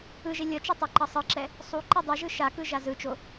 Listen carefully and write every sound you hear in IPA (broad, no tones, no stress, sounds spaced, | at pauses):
ɯ ʒ e lʲ ʌ t͡ʃ i tˤ i ǃ ʌ sˤ ɯ ǁ ɛ | sˤ u ǃ ɛ dˤ ɛ ʒ ɯ ʃ a k ɯ ʒ a z ɯ t͡ʃ o